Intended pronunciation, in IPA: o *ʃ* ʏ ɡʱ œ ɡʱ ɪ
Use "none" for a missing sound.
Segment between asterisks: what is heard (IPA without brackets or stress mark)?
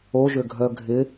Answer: ʒ